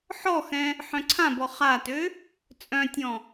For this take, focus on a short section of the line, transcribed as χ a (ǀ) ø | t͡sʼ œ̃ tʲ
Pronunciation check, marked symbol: incorrect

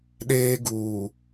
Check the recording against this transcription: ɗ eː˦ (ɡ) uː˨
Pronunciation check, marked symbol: correct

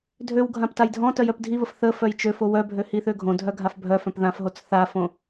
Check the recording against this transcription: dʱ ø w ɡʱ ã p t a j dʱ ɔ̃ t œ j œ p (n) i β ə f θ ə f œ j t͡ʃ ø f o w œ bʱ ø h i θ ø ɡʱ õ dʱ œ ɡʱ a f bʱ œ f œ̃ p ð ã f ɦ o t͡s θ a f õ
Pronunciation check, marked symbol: incorrect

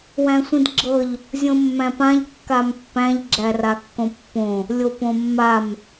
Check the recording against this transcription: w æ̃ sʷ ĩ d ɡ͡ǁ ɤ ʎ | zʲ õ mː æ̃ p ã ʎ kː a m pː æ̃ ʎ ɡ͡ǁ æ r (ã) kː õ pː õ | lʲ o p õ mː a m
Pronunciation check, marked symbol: incorrect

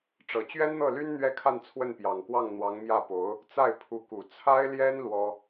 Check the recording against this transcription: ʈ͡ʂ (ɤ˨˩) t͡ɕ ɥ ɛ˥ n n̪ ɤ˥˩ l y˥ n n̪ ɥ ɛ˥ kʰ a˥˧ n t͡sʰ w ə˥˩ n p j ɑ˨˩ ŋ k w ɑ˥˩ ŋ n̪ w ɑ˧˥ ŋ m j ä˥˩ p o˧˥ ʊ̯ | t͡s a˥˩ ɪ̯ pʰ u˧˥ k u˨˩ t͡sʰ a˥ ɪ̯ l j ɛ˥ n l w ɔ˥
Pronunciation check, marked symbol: correct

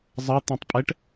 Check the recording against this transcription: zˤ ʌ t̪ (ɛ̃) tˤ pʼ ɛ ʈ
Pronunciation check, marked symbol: correct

